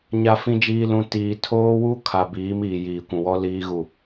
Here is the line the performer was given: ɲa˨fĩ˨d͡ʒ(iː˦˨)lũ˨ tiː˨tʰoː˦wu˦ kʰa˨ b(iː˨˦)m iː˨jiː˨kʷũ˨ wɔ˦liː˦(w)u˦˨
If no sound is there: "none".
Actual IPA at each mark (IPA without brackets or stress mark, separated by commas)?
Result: iː˨, iː˨˦, ɣ